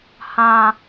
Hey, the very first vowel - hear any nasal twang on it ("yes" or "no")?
yes